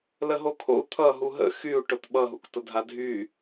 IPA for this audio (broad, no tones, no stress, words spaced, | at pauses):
ləɦokʰo̰u̯ t̪ʰʌ ɦuɦə̰ xyu̯ ʈotɓʌ ɦṵktʊdʱadʱy